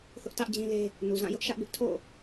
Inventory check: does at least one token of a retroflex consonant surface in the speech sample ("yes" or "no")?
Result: no